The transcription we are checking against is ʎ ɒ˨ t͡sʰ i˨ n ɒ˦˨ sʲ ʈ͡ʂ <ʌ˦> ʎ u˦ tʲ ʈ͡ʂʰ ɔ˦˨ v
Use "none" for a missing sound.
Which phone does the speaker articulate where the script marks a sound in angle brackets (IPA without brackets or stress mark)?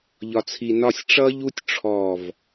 ʌ˦